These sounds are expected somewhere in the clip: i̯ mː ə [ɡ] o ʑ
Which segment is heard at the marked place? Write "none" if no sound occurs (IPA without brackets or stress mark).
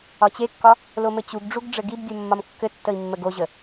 ɡ